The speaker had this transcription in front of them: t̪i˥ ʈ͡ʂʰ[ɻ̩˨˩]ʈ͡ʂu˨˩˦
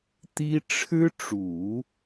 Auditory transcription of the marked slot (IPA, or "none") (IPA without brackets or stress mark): ɻ̩˥